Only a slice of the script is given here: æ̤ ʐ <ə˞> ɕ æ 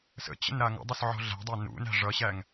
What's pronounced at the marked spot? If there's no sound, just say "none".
ʌ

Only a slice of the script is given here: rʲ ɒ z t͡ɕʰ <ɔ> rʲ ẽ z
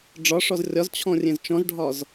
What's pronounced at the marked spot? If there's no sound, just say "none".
ɔ̃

